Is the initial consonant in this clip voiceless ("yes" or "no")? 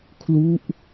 yes